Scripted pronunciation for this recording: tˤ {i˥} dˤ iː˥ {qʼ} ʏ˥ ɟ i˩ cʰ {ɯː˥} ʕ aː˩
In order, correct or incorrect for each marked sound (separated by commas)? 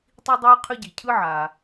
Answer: correct, incorrect, incorrect